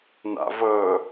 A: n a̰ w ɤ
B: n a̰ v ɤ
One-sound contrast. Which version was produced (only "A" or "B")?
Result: B